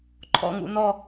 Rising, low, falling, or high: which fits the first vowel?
falling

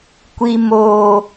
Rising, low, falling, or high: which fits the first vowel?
high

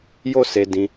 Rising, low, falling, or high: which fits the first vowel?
high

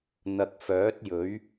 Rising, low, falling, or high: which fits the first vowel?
low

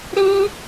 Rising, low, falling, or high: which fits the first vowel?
high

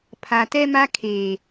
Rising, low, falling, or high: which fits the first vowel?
low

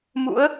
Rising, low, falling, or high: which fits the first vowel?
rising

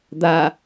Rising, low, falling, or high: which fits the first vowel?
low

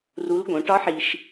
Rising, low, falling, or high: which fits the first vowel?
rising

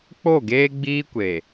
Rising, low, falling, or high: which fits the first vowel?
falling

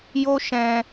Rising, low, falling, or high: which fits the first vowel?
high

